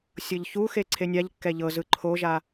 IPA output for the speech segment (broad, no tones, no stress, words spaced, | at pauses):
sʲɤʎçuxe ǀʰenʲaʎ kːɛʎɤzɯ ǃʰoʒa